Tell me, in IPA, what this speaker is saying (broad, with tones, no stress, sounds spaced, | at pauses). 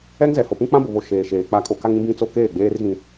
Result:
ɛ˦ ŋ z ɛ˨ h o˨ p ũ˦ k͡p ã˦ b ʊ˨ β o˨ ʃ eː˨ ʃ eː˨ k͡p a˨˦ kʼ o˨ k a˦ ŋ ĩ˦ b ĩ˦ t͡s o˦ k eː˦˨ ɡ͡b eː˦ r ɣ ĩ˦